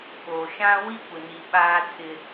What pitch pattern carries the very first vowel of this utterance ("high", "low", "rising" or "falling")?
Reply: low